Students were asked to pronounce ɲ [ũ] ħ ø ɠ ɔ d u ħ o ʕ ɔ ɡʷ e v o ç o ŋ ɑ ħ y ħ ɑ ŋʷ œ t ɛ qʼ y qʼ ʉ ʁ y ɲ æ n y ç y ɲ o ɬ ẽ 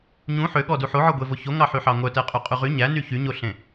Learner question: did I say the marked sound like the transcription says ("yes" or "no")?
yes